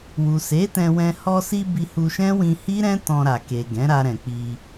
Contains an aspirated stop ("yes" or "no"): no